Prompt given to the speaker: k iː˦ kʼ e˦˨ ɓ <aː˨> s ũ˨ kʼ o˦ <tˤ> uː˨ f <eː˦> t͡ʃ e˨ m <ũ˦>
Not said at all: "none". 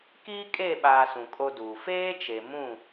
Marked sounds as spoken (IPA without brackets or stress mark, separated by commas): aː˨, d, eː˦, ũ˦˨